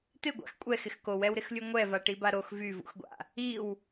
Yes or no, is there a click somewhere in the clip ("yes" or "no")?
no